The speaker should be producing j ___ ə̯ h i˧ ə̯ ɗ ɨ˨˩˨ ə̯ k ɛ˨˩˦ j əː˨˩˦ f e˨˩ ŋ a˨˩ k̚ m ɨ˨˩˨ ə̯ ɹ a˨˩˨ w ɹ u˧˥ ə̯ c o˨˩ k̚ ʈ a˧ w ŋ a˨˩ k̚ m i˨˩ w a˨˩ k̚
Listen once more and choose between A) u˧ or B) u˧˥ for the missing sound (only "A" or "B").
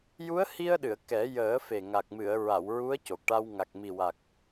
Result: B